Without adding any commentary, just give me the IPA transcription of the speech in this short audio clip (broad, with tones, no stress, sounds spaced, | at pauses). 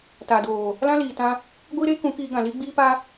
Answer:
t a˨ d oː˨ | l ã˦ l iː˨ t ã˧ | ɡʷ iː˦ ɾ eː˦ k ũ˨˦ k iː˧ ɡ ã˨ l i˦ ɡ͡b iː˦ p a˦